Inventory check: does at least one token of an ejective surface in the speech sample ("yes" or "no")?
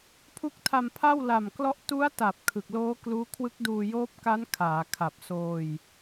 no